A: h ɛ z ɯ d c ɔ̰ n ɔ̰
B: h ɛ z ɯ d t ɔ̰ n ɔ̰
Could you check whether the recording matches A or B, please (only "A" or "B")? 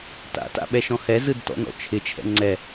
B